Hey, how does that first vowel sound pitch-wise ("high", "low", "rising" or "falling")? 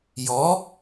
rising